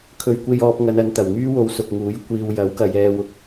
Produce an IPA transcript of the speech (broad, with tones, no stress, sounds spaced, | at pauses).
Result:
kʰ ɵ˨ ɥ kʷ e˧ j ɔː˧ p̚ ŋ ɐ˨˧ n ɐ˨˧ n t̪ ɐ˨˩ w ŋ yː˥ w o˨˧ w s ʊ˨ k̚ ŋ uː˨˥ j kʷ iː˧ w j ɐ˨˥ w k ɐ˨˧ j ɛː˧ w ʊ˧ k̚